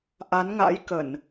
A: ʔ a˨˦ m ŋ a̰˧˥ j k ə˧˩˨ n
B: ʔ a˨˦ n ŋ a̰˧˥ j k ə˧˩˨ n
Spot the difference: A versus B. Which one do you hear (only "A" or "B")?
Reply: B